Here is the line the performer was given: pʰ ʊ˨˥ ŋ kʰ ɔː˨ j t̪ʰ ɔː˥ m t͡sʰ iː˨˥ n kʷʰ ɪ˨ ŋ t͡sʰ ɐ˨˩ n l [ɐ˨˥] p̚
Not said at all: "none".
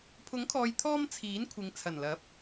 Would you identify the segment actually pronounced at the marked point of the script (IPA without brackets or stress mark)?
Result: ɐ˨˥